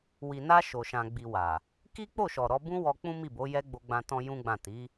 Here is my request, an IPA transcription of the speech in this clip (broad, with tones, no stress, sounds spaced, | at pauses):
w i˨ n a˧ ʃ o˨ ʃ ã˨ ɡ͡b i˨ w a˨ | k i˦ k͡p o˦˨ ʃ ɔ˨ ɾ ɔ˧ b ũ˦ w ɔ˧ k͡p ũ˦ m i˦˨ b o˨˦ j ɛ˦ ɡ͡b o˧ ɡ͡b ã˧ t ɔ̃˦ j ũ˦ ɡ͡b ã˦˨ t i˨˦